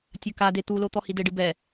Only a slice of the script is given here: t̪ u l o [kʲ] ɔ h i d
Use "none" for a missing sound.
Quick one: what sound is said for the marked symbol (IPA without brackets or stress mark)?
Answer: t̪